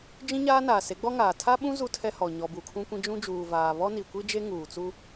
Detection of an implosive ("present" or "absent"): present